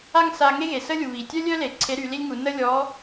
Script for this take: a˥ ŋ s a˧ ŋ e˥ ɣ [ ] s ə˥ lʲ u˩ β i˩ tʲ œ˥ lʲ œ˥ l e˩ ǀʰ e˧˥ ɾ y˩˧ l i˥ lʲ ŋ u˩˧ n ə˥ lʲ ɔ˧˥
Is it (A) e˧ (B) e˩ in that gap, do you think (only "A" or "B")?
B